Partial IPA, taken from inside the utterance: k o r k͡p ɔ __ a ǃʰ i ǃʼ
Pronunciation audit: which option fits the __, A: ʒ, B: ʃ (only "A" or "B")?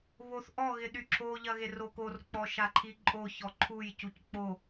B